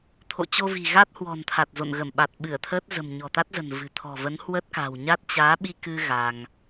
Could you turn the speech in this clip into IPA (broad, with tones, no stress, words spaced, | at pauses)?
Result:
t̪ʰo̰˧˨t͡ɕo˧vi̤˨˩ ɣa˦˥t̚hwɔ̤˨˩nt̪ʰa˨˩t̚ zo̰˧˨nɣə˧˩m ɓa˨˩t̚ɓɨ˧˩ə̯t̪ʰəː˦˥t̚ zə̤˨˩mɲɔ̤˨˩t̪a˦˥t̚zə̤˨˩n vɨ̤˨˩ t̪ʰɔ̤˨˩və˨˦n hwə˦˥t̚ka̤˨˩wɲa˦˥t̚ t͡ɕaː˨˦ɓi˧kɨ˧ ɣa˧ŋ